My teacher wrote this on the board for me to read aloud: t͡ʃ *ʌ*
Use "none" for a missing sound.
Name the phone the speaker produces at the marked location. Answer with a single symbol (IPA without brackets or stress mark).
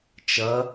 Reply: ʌ